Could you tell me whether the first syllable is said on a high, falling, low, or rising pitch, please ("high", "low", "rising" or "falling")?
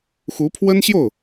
rising